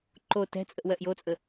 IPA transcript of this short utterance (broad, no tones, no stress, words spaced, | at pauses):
ǃo tɛ̤t͡sʼəʔ wɜʔjot͡sʼə